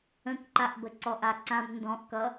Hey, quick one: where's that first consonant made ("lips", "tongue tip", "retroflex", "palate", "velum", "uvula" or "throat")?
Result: velum